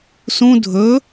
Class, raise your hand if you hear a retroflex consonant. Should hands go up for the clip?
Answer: no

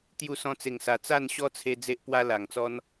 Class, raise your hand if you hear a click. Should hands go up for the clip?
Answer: no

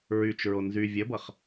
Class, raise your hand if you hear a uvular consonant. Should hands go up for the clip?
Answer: yes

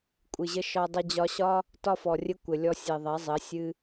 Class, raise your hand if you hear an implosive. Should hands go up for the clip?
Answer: no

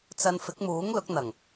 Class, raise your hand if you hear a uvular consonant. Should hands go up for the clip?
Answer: no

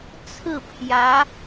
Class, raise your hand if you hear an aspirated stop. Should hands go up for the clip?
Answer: yes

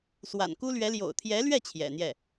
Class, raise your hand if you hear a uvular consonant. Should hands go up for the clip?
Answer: no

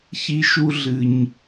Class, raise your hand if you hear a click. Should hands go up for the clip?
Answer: no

